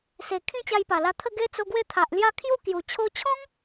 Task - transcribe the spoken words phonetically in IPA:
s e˨˩ kʰ ĩ˥˧ t͡ɕ a˧ j p a˨˩ l a˧ t̪ʰ ə˥˧ ɡ e˦ t͡s o˧ ɡ w e˥˧ t̪ʰ a˨ ʔ l j a˦ kʰ j u˥˧ k j u˨˩ t͡ɕʰ o˧ t͡ɕʰ ɔ̃˦ ŋ

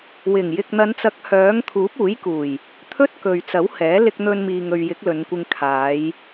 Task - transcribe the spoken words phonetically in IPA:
w ɪ˨˩ ŋ j ɪ˨ k̚ n̪ ɐ˨˧ n t͡s ɐ˨˥ k̚ h œː˨˥ ŋ t̪ʰ uː˨˥ p̚ uː˨˥ j k uː˨˩ j | t̪ʰ ɵ˥ t̚ k ɵ˨ ɥ t͡s ɐ˨˥ w h ɛː˨˥ l ɪ˧ k̚ n̪ ɵ˧ n m iː˨ ŋ ɵ˨ ɥ j ɪ˨˥ k̚ l ɵ˨˧ n kʷ ɪ˧ ŋ kʰ aː˨˧ j

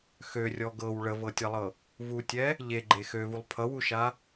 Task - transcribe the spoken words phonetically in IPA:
x ø rʲ ɔ ɡ ɤ w ɭ ə v ɤ tʲ a lˠ ɤ | v u tʲ ɛ | ʎ e ɡ͡ǃ e x ø v u lˠ pʰ ʌ w u ʃ a

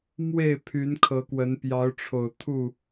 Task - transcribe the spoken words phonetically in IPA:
m w e˥˨ ɪ̯ pʰ y˨˦ n kʰ ɤ˨˦ k w ə˨˦ n p j ɑ˨˦ ʊ̯ ʈ͡ʂʰ o˨˩ ʊ̯ t̪ʰ u˥˨

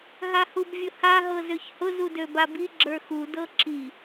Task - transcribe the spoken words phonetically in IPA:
ɦ a h u b vʲ ʊ h a ɦ ɤ z ø ç h ʊ z u d ø b a b i ɡ͡ǁ ə˞ x u d ɤ ǁʰ i

